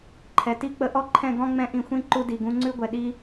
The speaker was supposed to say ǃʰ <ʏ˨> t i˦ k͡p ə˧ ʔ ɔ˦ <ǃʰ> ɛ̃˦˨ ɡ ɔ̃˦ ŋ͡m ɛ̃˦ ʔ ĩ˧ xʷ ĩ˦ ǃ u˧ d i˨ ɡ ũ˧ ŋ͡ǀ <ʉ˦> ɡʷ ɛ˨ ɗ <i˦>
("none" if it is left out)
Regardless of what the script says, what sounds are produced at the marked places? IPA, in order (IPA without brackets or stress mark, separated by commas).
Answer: ɛ˨, ǃʰ, ʉ˦, i˦